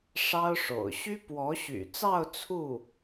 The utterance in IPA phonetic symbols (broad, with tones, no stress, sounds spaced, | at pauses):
ʂ ɑ˥ ʊ̯ ʂ o̰˨˩ ʊ̯ ɕ y˥ p w ɔ˧˥ ɕ y̰˨˩ t͡s ɑ˥˧ ʊ̯ t͡sʰ u˥˩